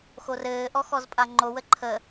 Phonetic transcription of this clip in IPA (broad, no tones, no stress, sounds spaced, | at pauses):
x o r ɘː ʔ ɔ x ɔ z pʼ a ŋ͡ǃ o w ə ǃʰ ə